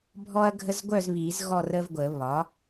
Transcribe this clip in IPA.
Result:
bʱ ɔ˦ ɐ̯ ɡʱ ə˦ z ɡʷ œ˥˨ z β i˨˩˦ z ɣ ɔ˥˨ r ə˦ v ɡʷ ə˨˩˦ β ɒ˩˥

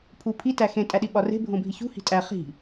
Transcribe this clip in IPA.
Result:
pʰ u pʰ i t æ x ẽ tʼ æ ɗ i ɓ ɒ r e̤ bʱ õ bʱ i ç ṳ h i̤ tʼ æ χ i̤

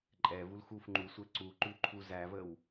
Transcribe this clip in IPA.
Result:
ǃʼ ɛ v u l x u f ŋ͡ǃ u sʷ æ ǀ u ǃ ʉ ǃʰ u z æ v ə w

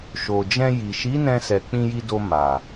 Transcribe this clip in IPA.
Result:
ʃ o˨ d͡ʒ ɛ̃˧ j i˨ ʃ i˨˦ n ɛ̃˧ s ɛ˨ k͡p ĩ˧ j i˧ d o˧ m a˨

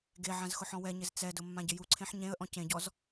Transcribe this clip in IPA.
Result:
ɡ e ʕ ã z x ʊ ħ ɔ̃ w ɛ ɲ ɪ z t͡s ɛ d ʊ mː ã ɟ ɪ j u ǀʰ ẽ ħ ɲ ẽ ə̯ ʔ ɔ̃ c ẽ ɟ ɔ z

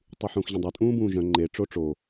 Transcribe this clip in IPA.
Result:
tˤ y ħ ũː x ʑ ə̃ dˤ œ tʼ ũː b ũː ʒ œ̃ ŋ͡ǃ e ʈ͡ʂ o ʈ͡ʂ o

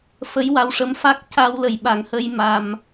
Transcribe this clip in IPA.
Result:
f ə˧˥ j w a˧ w ʂ ə˧˥ m f a˦˥ k̚ c a˧ w l ə˨˩ j ɓ a˨˩˦ ŋ h ə˧ j m a˧ m

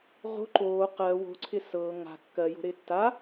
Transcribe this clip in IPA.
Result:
ʁ o̤ ǃ oː q ɜ w o̤ ǀʰ ɪ s ɤː ŋ a̤ kː ɜ j o̤ ɾ ɪː tː a

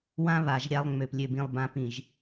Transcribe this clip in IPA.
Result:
w ã˦ β a˨ ʒ ɾʲ a˦ lˠ ŋ͡m ø˨ p lʲ ø˨ b ĩ˨ lˠ b ã˨˦ p ĩ˨ ʒ

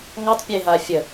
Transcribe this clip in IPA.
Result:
ŋ ɔ tˤ pʲ e ɦ a fʲ ə

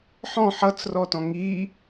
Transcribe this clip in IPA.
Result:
ħ ɔ̃ ħ ʌ t͡s r ɔ t ɔ̃ ŋ i

